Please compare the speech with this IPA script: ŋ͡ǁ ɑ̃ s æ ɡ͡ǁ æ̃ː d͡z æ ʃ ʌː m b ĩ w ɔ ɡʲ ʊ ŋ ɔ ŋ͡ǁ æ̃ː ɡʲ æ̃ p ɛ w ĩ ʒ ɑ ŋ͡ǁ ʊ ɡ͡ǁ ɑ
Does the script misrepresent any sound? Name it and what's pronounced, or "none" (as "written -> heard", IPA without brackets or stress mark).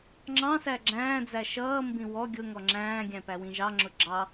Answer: ɛ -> æ